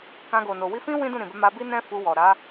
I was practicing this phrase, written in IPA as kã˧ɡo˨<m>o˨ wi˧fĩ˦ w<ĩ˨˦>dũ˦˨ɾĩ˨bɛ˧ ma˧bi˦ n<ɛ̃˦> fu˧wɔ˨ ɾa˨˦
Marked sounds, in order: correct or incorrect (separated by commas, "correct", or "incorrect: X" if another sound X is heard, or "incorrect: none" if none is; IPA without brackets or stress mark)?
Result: incorrect: n, incorrect: ĩ˦, correct